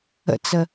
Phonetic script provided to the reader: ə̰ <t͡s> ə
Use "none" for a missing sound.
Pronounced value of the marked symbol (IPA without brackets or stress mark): t͡s